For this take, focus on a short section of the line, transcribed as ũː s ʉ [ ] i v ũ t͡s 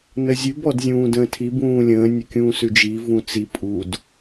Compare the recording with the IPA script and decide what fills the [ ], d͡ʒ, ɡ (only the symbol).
d͡ʒ